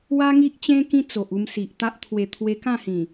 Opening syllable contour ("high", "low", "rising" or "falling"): high